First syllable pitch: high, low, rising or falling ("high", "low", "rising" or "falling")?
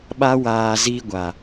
high